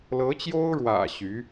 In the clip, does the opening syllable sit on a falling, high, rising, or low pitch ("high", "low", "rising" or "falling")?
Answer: rising